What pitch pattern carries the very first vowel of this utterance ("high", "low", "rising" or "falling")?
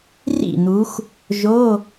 falling